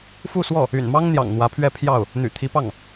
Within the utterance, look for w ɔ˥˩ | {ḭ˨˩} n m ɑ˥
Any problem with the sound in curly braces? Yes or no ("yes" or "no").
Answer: yes